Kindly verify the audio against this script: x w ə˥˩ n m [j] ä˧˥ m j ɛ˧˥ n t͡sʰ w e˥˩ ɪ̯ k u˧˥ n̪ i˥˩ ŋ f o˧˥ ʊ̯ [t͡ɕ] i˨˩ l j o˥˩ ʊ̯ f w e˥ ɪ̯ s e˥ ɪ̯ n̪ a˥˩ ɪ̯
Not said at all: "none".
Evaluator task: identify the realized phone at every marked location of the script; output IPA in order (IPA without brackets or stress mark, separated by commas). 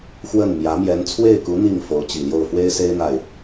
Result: j, t͡ɕ